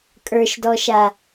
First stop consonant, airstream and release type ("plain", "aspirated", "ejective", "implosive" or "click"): ejective